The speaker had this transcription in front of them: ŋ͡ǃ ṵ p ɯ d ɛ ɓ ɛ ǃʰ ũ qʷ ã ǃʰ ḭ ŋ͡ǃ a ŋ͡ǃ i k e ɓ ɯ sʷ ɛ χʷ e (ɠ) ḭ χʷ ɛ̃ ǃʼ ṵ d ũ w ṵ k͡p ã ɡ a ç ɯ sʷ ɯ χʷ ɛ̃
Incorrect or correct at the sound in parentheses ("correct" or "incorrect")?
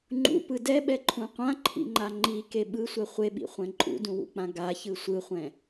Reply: incorrect